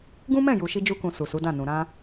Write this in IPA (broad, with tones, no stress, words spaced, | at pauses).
ɡũ˦mɛ̃˦˨ju˨ʃi˧ d͡ʒu˧kũ˨ su˨su˨˦dã˦˨nũ˨ ɾã˧